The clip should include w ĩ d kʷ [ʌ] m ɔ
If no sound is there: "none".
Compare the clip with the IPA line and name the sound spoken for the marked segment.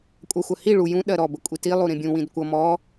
ʌ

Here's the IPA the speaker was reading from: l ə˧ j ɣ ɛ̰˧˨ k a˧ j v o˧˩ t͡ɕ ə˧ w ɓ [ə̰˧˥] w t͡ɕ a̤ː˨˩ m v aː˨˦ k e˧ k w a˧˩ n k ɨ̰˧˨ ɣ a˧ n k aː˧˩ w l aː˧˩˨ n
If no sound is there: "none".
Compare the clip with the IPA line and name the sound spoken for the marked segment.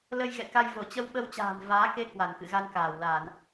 ə˧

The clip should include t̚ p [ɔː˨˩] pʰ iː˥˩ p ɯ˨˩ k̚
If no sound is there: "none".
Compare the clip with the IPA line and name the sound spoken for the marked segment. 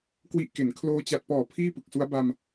ɔː˨˩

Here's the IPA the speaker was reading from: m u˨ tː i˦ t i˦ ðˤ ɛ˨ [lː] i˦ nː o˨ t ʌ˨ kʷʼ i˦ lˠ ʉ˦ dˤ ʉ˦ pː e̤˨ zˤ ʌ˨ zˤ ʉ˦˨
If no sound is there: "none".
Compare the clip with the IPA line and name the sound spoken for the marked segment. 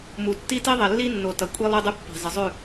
lː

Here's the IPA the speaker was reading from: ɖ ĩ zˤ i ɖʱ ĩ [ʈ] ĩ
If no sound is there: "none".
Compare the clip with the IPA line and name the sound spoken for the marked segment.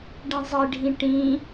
ʈ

